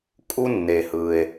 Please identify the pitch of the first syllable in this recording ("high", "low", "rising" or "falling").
high